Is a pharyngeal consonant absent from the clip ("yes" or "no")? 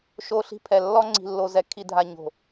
yes